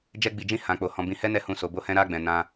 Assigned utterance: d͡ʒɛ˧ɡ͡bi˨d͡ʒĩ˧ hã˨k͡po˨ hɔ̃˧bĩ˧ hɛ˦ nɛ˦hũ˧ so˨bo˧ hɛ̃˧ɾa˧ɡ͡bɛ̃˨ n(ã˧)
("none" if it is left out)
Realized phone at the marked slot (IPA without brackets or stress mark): ã˧